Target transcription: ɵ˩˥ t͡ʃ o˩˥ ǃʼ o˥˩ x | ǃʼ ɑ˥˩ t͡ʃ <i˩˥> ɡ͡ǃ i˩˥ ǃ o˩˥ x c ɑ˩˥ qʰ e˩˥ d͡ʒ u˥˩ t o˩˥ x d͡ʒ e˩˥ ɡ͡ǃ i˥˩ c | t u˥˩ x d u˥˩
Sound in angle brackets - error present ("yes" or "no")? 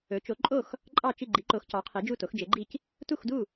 yes